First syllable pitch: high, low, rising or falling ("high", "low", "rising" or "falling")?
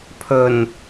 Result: low